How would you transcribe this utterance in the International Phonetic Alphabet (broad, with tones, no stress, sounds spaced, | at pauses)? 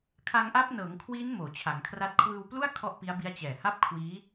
kʰ a˧ ŋ ʔ a˦˥ p̚ n ɤː˩˦ ŋ kʰ w iː˦˥ n m oː˩˦ t͡ɕʰ a˩˦ ŋ kʰ r a˦˥ t̚ kʰ w ɯː˧ w p l u˥˩ a̯ kʰ ɔ˥˩ ʔ p i˦˥ a̯ b i˦˥ a̯ t͡ɕ ɛː˨˩ h a˥˩ p̚ kʰ w iː˦˥